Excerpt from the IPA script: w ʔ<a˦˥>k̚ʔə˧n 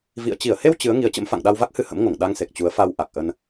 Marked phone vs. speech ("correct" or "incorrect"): incorrect